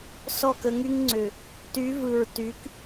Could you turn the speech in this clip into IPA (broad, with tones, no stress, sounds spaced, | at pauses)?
s ɔ˦˨ k ə˧ ŋ y˦ ŋ ŋ͡ǀ ʏ˨ | t y˨˦ v ɯ˨ ɹ t y˨˦ k